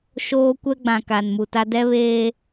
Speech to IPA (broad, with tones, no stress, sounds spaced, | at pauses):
ʃ oː˦ kʷ ɛ˦ ɡ͡b ã˨ k a˨ n m u˨ t a˦ d ɛ˦ β eː˦